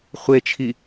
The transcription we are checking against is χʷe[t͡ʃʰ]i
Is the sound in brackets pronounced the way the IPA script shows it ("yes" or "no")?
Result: yes